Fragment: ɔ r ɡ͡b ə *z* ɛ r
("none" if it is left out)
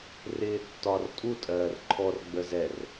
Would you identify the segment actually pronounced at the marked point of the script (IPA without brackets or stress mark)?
z